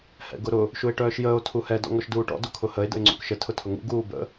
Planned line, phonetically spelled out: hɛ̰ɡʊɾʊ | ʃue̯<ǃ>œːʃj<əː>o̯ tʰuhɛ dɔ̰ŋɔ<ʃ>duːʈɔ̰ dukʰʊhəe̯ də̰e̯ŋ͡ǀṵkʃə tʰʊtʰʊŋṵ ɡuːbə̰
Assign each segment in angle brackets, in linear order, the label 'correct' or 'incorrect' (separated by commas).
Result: incorrect, correct, correct